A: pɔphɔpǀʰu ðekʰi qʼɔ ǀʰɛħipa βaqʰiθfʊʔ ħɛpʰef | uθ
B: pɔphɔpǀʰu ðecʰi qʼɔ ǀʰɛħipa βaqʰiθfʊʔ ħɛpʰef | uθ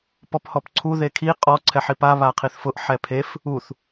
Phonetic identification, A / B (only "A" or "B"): A